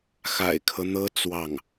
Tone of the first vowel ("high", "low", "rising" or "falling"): low